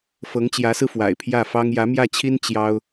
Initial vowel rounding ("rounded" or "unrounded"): unrounded